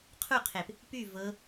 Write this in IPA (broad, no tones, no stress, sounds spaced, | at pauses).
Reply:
qʰ u qʰ e p | p y v ɤ